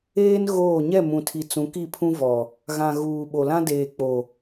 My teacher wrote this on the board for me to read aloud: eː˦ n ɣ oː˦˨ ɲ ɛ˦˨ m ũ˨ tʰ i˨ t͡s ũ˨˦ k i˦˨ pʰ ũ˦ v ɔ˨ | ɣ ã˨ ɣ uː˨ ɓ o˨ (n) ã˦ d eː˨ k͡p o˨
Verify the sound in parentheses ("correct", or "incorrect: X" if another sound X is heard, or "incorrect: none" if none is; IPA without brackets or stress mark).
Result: incorrect: l